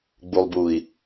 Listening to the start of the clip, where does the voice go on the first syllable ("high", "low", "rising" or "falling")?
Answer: low